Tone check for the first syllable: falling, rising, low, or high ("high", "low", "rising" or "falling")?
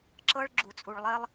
high